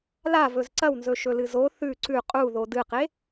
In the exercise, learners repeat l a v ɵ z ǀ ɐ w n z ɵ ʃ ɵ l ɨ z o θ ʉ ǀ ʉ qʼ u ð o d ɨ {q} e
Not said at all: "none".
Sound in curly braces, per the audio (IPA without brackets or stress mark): q